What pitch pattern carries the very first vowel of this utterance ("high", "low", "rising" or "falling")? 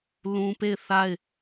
high